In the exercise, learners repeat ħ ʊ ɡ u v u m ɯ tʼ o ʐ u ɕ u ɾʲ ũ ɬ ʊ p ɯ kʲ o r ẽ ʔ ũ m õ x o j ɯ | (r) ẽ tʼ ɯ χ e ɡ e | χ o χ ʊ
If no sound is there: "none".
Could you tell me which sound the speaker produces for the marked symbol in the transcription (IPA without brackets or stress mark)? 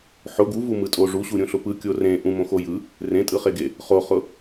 r